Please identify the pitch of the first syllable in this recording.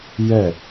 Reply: falling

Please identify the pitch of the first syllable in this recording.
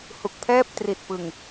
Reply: low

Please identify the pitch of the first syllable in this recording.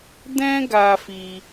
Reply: high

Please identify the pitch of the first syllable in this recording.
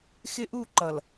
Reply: high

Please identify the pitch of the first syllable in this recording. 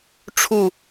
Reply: falling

